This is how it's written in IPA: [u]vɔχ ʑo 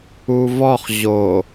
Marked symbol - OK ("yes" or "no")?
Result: yes